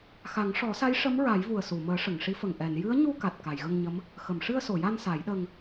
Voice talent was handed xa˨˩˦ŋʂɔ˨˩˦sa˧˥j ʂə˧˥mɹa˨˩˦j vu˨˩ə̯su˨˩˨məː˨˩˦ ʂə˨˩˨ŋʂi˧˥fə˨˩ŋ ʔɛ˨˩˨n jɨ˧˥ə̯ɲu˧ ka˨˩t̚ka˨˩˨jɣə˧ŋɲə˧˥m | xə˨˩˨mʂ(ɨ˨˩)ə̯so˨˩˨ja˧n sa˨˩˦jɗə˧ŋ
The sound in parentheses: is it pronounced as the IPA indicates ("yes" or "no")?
no